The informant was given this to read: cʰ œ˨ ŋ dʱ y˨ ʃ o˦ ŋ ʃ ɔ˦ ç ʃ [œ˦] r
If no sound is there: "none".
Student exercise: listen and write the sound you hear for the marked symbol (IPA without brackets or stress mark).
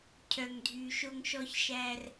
æ˦